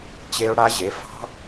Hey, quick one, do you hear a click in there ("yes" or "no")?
no